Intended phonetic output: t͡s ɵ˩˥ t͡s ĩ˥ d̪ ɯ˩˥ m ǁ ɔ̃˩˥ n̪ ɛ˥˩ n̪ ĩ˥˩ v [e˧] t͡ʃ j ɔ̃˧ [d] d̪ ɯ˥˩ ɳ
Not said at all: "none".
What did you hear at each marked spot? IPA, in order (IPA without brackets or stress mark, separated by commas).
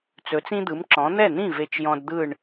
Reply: e˧, d